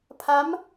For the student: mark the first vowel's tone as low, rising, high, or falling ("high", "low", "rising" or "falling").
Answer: rising